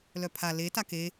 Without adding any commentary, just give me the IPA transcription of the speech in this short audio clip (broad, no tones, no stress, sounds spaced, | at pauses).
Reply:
l œ pʰ a l e t a k e